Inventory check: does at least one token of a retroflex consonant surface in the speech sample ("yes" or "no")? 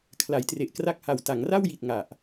no